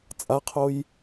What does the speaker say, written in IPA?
t͡sʼaqʰoj

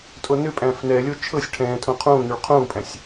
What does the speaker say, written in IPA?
tʼonʏpʼæ̃ːf nɛlʲo t͡ʃʰɤsʲ ʈʰɛ̃ːtʰõ qʰũːnuɭ qʰũːpʼæ̃sʲ

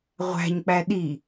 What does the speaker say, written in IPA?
ʁʷæ̤ɲk͡pæ ɗi

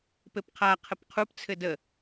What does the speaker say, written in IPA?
pɘpqʰa qʰəpqʰupt͡sʰɘ də

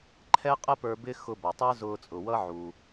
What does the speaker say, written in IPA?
ǃʰɛ˥qʼə˥pə˞˧ bɪ˥ xʊ˧bʌ˩tˤə˞˥ zʊː˧t͡sʼʊ˩wʌ˥ ʕu˩

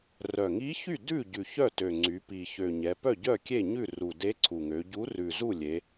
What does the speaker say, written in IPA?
rœ˨˩ŋi˧˥çy˥˩ dʉ˥˩ɟʉ˨˩ çœ˥˩tø˨˩ŋ͡ǀy˩˧ pi˨˩çø˨˩ɲɛ˩˧ pœ˥˩ɟœ˥˩ kʲe˥˩ɲʉ˥˩ru˨˩ de˧˥ǀʰu˨˩ŋø˩˧ ɟu˧˥ rʉ˨˩zu˥˩lʲe˩˧

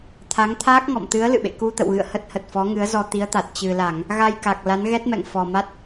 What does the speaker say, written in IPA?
t̪ʰa˨˦ŋ t̪ʰaː˦˥k̚ŋɔ̰˧˨mt̪ɨ˨˦ə̯ lɨ̰˧˨ɓḛ˧˨ ku˧t̪ə̰˧˨wɣɨ̰˧˨ə̯ hə˦˥t̚ hə˨˩t̚fɔ˨˦ŋɨ˨˦ə̯zɔ˧ t̪i˨˦ə̯t̪a˨˩t̚ t͡ɕɨ˨˩la˧˩˨ŋ | ɣa˧jka˨˩k̚ la˨˦nɣɛ˦˥t̚mɛ̰˧˨ŋ fɔ˨˩ma˦˥t̚

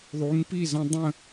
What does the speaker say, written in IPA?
ðˤu˨˦ŋpi˥˨zə̃˦ dˤə̃˥˨

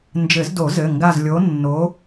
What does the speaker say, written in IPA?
nd͡ʒɘ˨˩˦zdo˨˩˦ zɘ˩˧˩ŋɡa˦˨z lʲo˨˦nːo˨˦

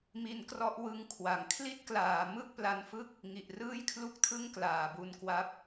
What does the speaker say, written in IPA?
mi˧nkrɔ˦˥ʔwɯ˧ŋkʰwa˨˩ŋ kʰli˥˩t̚klaː˨˩ mɯ˥˩k̚pla˧nfɯ˥˩k̚ | ŋi˨˩ʔrɯː˥˩jkʰlu˥˩k̚tʰɯ˥˩ŋ klaː˨˩bu˧n kwa˦˥p̚

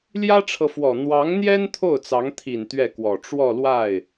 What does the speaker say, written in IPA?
ljä˥ʈ͡ʂʰɤ˨fwɔ˨˩ n̪wɑ˧˥ŋn̪jɛ˥n t̪ʰo˥˩ʊ̯t͡sɑ˧˥ŋt̪ʰi˨˩n t̪ɥɛ˥˩kwɔ˨˩ ʈ͡ʂwɔ˥˧lwa˥˩ɪ̯

